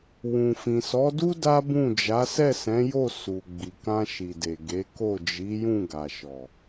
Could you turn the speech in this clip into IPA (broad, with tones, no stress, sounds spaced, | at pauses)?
w ũ˨ f ĩ˨ s ɔ˨˦ d u˦ d a˦ b ũ˦˨ d͡ʒ a˨˦ s ɛ˦˨ s ɛ̃˨˦ j o˦˨ s u˨ ɡ͡b i˨ k ã˧ ʃ i˨ d e˨ ɡ e˨˦ k o˦˨ d͡ʒ i˨˦ j ũ˦˨ ɡ a˨ ʃ ɔ˨